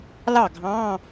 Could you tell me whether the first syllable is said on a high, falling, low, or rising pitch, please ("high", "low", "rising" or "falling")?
falling